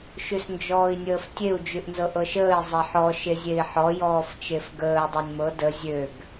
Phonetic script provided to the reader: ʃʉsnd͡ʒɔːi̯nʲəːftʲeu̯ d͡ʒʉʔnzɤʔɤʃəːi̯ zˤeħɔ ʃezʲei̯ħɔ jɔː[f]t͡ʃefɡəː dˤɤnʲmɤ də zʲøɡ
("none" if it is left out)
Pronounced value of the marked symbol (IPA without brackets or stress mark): f